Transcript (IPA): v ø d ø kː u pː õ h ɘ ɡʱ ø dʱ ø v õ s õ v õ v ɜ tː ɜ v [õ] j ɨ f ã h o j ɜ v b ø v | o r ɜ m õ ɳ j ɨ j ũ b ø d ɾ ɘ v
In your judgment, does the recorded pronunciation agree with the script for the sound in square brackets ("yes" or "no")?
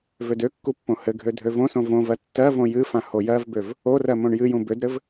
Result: yes